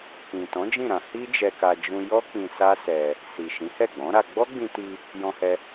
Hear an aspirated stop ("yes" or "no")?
no